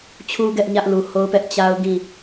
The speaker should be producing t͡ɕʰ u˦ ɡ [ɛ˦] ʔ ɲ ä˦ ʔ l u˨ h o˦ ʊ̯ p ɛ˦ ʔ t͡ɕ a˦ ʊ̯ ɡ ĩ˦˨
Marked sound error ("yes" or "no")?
no